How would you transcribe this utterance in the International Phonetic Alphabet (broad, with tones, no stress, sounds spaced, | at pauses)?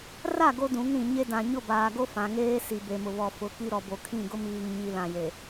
r a˦˨ ɡ o˦ d ũ˨˦ ŋ ɾ ĩ˨ ɲ e˦ d ã˨ ɲ ʊ˦˨ b aː˨ ɡ o˦ f ã˨ ŋ eː˦ s i˨ b e˨ m ʊ˨ β ɔ˨ f ʊ˨˦ k i˦ ɾ ɔ˨ b o˨ kʰ ĩ˦˨ ɡ ʊ˦ m iː˨ ŋ ɲ i˨ l ã˨ j e˨